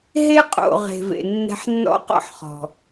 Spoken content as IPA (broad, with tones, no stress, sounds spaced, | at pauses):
ɦ e˦ qʼ o̰˨ ʁ e̤˨ v ḛ˨ nː ɛ̤˧ ħ nː ɔ̰˦ q ɔ̰˦ ħ χ ɔ̤˨